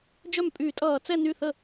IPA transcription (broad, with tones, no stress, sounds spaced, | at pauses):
d͡ʒ œ˥˩ m pʼ y˧˩˧ tʼ ʌː˧˩˧ t͡s ɛ˥˧ n y˥˩ θ ə˥˩